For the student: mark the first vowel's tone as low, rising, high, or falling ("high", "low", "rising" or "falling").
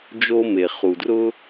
high